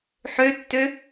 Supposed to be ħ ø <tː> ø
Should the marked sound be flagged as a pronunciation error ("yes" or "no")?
no